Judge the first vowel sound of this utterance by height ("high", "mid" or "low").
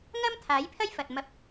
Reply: low